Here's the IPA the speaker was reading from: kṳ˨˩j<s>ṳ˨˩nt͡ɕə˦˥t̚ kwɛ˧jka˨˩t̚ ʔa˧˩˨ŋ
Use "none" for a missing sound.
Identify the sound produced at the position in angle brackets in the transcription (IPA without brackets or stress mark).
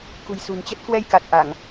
s